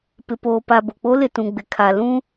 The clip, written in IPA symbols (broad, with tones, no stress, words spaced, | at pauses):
pɪ˨poː˨pa˨ bo˨k͡po˦lɪ˨ tũ˨ ɡ͡bɪ˨kʰa˨lũ˦